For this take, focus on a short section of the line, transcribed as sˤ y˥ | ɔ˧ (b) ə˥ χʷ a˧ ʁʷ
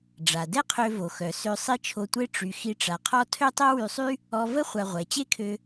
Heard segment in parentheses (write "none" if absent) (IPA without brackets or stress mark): v